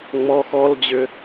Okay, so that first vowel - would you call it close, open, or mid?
mid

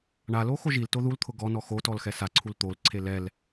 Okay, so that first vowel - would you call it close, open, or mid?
open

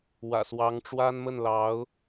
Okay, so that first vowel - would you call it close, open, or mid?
open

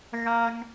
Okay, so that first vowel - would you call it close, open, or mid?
open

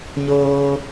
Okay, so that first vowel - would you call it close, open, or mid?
mid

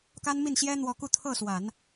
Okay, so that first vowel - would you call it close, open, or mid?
open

